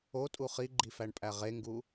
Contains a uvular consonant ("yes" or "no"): yes